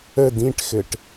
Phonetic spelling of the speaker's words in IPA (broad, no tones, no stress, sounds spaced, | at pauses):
ə d ĩ ʈ x ɘ ʈ